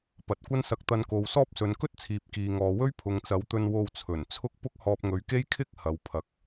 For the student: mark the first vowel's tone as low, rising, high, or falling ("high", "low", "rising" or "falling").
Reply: low